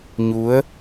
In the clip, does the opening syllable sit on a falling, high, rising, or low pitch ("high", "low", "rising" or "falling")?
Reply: rising